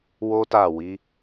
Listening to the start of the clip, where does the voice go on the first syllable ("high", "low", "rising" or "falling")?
high